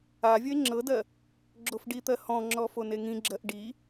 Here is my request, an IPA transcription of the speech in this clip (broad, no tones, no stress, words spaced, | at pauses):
a vʲʌe̯ŋ͡ǁɤdɜ | ɡ͡ǁofɖit̪ɜ hɔ̃ŋ͡ǁɔ foneŋĩɡ͡ǁɜʔ ɖi